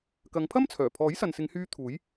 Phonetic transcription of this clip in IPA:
k ɐ˨˧ ŋ pʰ ɐ˥ m t͡sʰ œː˨˩ pʰ ɔː˨˥ j s ɐ˨ n s ɪ˨˧ ŋ h yː˧ t̪ʰ uː˨˥ j

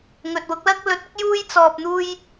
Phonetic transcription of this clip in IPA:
ŋ ɵ˨ t̚ w ʊ˨˥ k̚ l ɐ˥ k̚ l ɵ˨˥ t̚ ʊ˨˥ k̚ j uː˥ j t͡s ɔː˧ p̚ n̪ uː˥ j

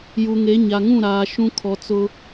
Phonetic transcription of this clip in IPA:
j u˨ ŋ e˨˦ ɲ a˨ ŋ ũ˦˨ ɾ aː˨ ʃ ũ˦ kʰ ɔ˨ t͡s ʊ˦

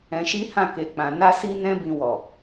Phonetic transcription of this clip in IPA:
ɛ̃˧ ʃ i˦ h ã˦˨ k e˨ k͡p ã˨ n a˧ s i˧ n ɛ̃˧ b ĩ˧ w ɔ˨

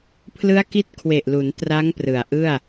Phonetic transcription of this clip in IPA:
pʰ l ɯ˦˥ a̯ k i˦˥ t̚ kʰ w e˨˩ ʔ l u˩˦ n t r a˦˥ ŋ p r ɯ˨˩ a̯ ʔ ɯ˥˩ a̯

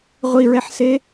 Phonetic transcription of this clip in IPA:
ʁʷ i ɹ ɛ ħ s e

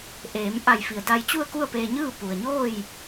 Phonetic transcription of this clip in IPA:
ʔ eː˩˧ m ʔ a˧˩ j f i˩ ə̯ d a˧ j t͡ɕ u˥˨ ə̯ k u˥˨ ə̯ p eː˧ ɲ ɯː˥˨ p u˩ ə̯ ɲ oː˥˨ j

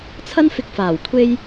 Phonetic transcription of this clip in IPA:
t͡sʰ ɐ˥ n f ɪ˧ k̚ f aː˨˩ w kʷʰ e˧ j

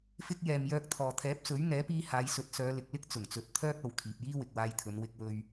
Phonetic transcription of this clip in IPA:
f ɪ˧ k̚ j ɛː˨ m j œː˧ k̚ t̪ʰ ɔː˨ t̪ʰ ɛː˨˥ p̚ s ɵ˨˥ ɥ ŋ ɛː˨˥ p iː˧ h aː˨˧ j s ɵ˨˥ t̚ s œː˨˧ l ɪ˨ k̚ l ɪ˥ k̚ t͡s ʊ˨˩ ŋ t͡s ɵ˨ t̚ t̪ʰ œː˥ k̚ ɐ˨ w kʰ iː˨ p̚ j iː˥ w ɪ˨ k̚ w aː˧ j t̪ʰ ɵ˨˧ n w ɪ˥ k̚ w ɵ˥ ɥ

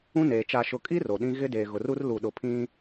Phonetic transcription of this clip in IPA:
ũ˦ n eː˨ t͡ʃ a˨ ʃ ʊ˨ kʼ i˦ r o˨ ɗ ĩ˦ ɣ ɪ˦ d eː˨ ɣ ʊ˨ r u˦ r l u˨ ɗ ʊ˨ pʰ ĩ˦

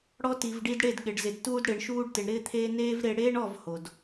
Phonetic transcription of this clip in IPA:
ɽ ɔ˧ t i˨ v ɖ i˧ d ɽ e˦˨ d ɠ ɪ˨ ɖ z ɪ˨ d t uː˧ d ɽ ɪː˨ ɳ ʃ uː˧ ɖ t ɪ˨ ɳ ɾ ɪː˧ t̪ʰ eː˧ n eː˦ v ɾ e˧ ɽ eː˦ ɳ ɔ˦˨ v h o˨ d

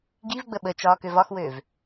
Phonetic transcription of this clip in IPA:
ɡ i v ɡ͡b ə ɓ ə t͡ʃ ɒː k ø v ɒ x w øː v

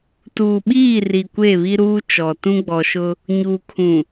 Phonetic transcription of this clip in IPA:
t uː˨ ɓ iː˦˨ r i˨ kʷ e˦˨ β i˦ ɾ uː˦ t͡ʃ ɔ˨ t ũ˦ ɡ͡b ɔ˨ ʃ ʊ˦ | ɲ uː˨ kʰ ũ˨

